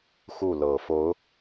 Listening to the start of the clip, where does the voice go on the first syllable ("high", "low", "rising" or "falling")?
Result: falling